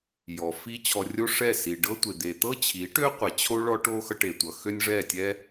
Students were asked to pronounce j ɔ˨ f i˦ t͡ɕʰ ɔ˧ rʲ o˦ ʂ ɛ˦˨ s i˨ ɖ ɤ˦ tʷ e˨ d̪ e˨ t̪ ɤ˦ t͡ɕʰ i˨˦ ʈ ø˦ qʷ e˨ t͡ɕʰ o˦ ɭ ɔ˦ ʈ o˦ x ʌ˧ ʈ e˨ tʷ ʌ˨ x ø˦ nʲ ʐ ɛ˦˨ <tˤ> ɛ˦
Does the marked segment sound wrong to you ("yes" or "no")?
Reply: yes